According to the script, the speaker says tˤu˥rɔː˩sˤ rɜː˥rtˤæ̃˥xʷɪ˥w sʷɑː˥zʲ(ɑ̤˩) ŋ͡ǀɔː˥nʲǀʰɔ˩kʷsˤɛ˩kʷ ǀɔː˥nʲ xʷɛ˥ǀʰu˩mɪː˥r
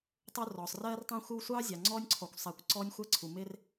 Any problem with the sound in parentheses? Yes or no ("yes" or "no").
yes